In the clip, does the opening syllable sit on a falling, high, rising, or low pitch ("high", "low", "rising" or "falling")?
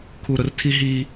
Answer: low